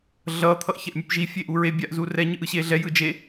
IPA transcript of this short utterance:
ɮʌ t̪ʰʌʔçɛʔmʲɯpʒi fʲeʔuɹe bʲaʔzurɛ ɲɯʔɯɕeɮɛ jɯd͡ʒe

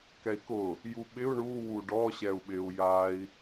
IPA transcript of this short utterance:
kɛi̯kʊ | juɓɪu̯ ɳu wuɖɔ ɕɛu̯ɓɪu̯ jai̯

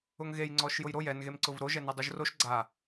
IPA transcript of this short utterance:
ʊŋɣej ŋ͡ǀɔʃjʊjɾoj ɛnɣemǀʊv ɾoʒɛne dˤuʒroʃ ɡ͡ǀa

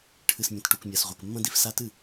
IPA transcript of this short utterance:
ʈʰɨ˨smʲɐ̃˨tʈu˨k mʲa˨sʁʷe˨kmːɐ̃˦ di˦f sa˦tɨ˦˨

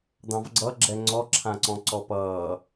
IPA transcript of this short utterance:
d̪ɑ̃vɡ͡ǀʌɡ͡ǁɛ ŋ͡ǀɔǁʰãǀɔ̃ ǀɔpʌː

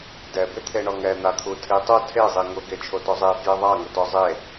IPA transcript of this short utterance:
dɛ bɪt̪ʰeɳɔŋɛ n̪at̪ʰutʰitˤu tʰe zˤiŋʊ ɡet͡ʃʰotɔzˤe fjeðˤa ŋʊtɔzˤe

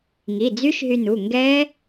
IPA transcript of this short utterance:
ŋi˩˧˩d͡zy˦˥ʃɦy˧nu˩˧˩ ŋɡɛ˦˥

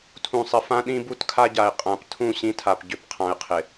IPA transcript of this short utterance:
tʰũ˨sˤɪ˨ fã˦ɗĩ˦ bu˦tkʰa˦ɟa˨ɪ̯ qʼã˨p tʰũ˦˨ ɕĩ˦tʰa˨pɟʏ˨˦p qʰã˨ɪ̯qʰɪ˨

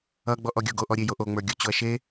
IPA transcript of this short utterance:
ʌɡ͡bɔʔɔ ɡʲoɡoʔɔɾʲe joʔoŋ͡mə˞ ɡʲot͡ɕoɐ̯ʃe

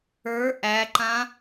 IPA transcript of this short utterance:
ə˞ ʔæǃã

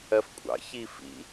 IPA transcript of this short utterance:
ɜfkʷʼɑ̰ çifḭ

